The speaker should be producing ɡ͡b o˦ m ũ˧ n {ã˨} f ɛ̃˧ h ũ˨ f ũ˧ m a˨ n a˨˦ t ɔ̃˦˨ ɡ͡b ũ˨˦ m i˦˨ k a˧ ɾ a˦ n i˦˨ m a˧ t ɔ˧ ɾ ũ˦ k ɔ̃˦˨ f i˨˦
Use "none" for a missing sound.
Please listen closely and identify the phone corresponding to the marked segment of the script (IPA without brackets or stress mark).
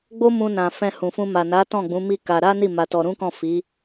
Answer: ã˨